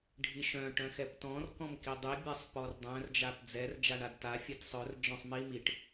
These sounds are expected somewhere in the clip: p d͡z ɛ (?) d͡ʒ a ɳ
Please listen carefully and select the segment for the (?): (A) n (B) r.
B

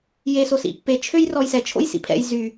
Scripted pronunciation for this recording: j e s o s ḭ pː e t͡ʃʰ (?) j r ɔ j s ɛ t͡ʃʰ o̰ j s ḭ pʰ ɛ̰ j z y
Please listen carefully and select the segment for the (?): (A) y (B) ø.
B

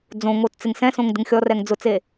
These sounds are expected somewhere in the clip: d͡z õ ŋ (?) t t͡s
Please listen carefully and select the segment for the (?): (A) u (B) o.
B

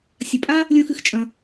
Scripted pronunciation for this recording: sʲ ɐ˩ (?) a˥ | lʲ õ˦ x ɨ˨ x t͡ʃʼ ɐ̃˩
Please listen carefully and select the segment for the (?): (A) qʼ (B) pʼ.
B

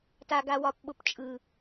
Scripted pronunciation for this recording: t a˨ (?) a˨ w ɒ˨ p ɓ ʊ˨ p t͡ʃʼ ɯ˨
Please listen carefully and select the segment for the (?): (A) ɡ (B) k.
A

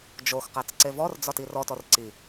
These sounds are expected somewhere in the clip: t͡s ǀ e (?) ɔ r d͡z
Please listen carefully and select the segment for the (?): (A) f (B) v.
B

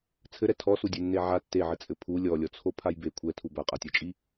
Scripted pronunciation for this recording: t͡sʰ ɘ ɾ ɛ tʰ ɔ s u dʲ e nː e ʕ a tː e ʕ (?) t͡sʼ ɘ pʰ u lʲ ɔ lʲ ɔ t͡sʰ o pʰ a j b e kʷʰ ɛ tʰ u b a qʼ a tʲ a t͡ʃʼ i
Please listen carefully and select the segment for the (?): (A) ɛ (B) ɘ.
B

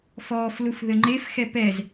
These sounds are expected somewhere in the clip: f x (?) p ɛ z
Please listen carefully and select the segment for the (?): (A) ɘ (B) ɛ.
B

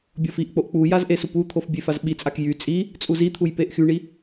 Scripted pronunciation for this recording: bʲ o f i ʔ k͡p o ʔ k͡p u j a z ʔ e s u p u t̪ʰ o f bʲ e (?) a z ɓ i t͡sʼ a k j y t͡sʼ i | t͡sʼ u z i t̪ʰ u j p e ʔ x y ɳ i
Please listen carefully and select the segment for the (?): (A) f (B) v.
A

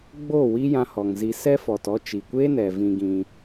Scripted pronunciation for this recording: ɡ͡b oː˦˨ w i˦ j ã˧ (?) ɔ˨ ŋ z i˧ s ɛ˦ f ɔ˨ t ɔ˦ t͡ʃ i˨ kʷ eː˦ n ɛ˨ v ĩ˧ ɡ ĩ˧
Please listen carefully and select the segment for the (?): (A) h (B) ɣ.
A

